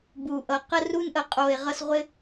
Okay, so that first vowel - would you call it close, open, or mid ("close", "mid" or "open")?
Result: close